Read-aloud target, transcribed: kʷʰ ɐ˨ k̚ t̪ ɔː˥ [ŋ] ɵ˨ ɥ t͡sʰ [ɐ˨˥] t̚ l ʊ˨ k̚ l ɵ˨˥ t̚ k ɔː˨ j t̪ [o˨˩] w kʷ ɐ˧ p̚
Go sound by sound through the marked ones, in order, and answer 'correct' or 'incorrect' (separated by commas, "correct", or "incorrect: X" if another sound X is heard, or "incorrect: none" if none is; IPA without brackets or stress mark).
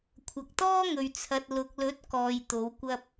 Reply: correct, incorrect: ɐ˨, incorrect: o˨˧